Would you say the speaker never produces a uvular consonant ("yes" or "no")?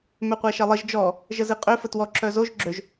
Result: no